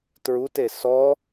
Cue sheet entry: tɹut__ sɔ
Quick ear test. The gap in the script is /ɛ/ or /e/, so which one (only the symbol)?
e